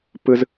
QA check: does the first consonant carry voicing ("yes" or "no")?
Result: no